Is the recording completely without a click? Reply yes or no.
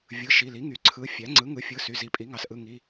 no